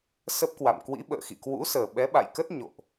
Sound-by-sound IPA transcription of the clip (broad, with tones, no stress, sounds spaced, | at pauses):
s ə˦˥ p̚ k w a̰˧˨ m k w ḭ˧˥ ɓ ə̰ː˧˨ x ḭ˧˨ k w ṵ˧˥ s əː˨˩ ɓ ɛ˨˦ ɓ a̰˧˨ j k ə˦˥ t̚ ɲ o̰˧˨ ʔ